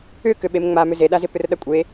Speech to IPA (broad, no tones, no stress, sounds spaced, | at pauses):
ʏ k ʏ ɓ e m ŋ͡m a m ʏ z e ɗ a z ɪ p ʏ r ɗ ɐ kʷʼ e